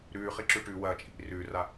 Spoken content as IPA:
ɾ ʉː χ i ǁ ʉ ʈ ʉ w ɐː t͡ʃʼ ḭ r ʉː r a

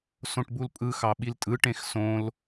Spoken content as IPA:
s õ ʈ b u l pʼ ɯ x ɑ ɓ i l tʼ ɯ ʈ ẽ x s õ l

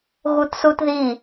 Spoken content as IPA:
ɣ u t s u t ð i

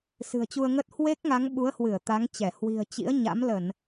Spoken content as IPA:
s ɨ̤˨˩ ə̯ t͡ɕ u˧ ə̯ ŋ ə˦˥ t̚ h w e˦˥ k̚ ŋ a˨˦ ŋ ɓ u˨˦ ə̯ h w ɨ˧˩ ə̯ t̪ a˨˦ ŋ t͡ɕ ɛ˧˩ h w i̤˨˩ ə̯ t͡ɕ ḭ˧˥ ə̯ ɲ a̰˧˥ m l ə˧˩˨ n

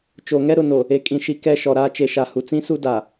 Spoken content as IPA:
t͡ʃ o˨ ŋ ɛ˦ ɾ ʊ˨ n o˨ | e˨ kʼ ĩ˨ ʃ i˨ k ɛ˦ ʃ ɔ˨ ɾ aː˦ t͡ʃ e˨ ʃ a˨ h u˨ t͡s ĩ˦ s u˦ d a˨

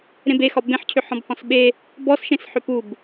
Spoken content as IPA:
ɾ ẽ b e x ɒ b ẽ ħ cʰ ʏ ħ ɔ̃ b h ɔ̃ s ɓ e | b ɔ s ʃ ẽ s ħ ʏ p u b

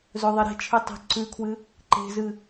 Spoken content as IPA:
z ɵ ðˤ e ɾ e̤ t͡ʃʰ ɨ tˤ i̤ ǀ ʉ kʰ w ɨ | ǃ e̤ z ɨ

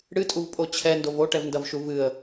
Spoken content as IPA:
ɽ ɨ tʼ u v pʼ o t͡ɕʰ ɛ n d o v o ʈ ɛ v n d ɐ v ʃ u v ɨ ə̯

